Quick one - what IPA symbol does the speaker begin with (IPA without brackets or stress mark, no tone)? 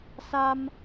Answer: s